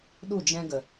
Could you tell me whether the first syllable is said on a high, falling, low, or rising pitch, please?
falling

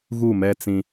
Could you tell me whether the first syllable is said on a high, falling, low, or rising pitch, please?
falling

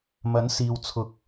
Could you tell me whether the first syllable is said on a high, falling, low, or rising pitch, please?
rising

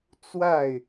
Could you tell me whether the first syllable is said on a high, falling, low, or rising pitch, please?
falling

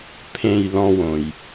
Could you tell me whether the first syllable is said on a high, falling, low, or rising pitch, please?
low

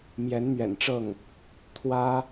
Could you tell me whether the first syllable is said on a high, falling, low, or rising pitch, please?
rising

